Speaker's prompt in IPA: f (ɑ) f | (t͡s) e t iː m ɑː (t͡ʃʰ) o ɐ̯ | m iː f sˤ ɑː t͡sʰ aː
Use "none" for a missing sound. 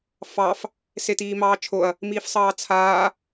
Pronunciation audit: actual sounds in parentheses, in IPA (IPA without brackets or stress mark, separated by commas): ɑ, s, t͡ʃʰ